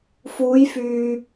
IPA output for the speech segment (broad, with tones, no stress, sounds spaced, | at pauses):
f uː˨˧ j f yː˨